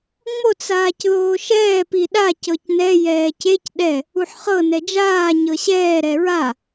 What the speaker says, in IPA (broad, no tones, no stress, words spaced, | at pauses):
ŋ͡mot͡s aːcðoːʃɛː piɗa cɤcnɛ jɛːcec ɗɛ | uħχɤ nɛd͡ʒaː ɲɤɕɛː ɾɛɹa